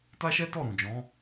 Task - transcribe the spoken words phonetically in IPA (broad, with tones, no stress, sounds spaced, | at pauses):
t a˦ ʃ ɛ˦ t ɔ˦˨ ɾ ũ˨ d͡ʒ ɔ̃˨˦